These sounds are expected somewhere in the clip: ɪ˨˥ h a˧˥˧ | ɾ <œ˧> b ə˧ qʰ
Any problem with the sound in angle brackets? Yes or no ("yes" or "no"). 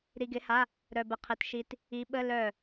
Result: no